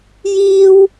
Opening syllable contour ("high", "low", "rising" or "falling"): high